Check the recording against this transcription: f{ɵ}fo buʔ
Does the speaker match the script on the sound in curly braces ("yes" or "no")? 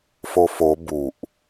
no